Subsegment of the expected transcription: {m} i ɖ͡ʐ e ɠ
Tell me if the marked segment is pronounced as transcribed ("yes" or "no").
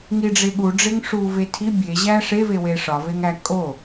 no